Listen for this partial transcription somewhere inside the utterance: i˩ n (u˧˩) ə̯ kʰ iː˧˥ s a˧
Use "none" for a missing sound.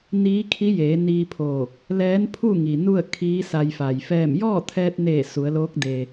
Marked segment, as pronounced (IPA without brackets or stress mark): u˥˨